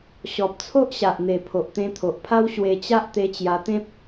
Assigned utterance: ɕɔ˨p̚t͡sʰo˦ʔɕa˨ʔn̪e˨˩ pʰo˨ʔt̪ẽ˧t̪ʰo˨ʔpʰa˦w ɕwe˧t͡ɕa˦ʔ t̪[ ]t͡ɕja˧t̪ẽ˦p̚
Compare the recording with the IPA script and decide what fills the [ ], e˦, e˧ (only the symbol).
e˧